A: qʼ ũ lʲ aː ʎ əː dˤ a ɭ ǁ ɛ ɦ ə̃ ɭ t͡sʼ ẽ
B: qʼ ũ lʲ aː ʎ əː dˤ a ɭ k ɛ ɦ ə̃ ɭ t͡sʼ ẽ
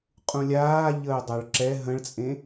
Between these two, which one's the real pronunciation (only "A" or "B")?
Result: A